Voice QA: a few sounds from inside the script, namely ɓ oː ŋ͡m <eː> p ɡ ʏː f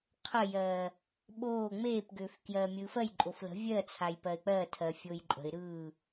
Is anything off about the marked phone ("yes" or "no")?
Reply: no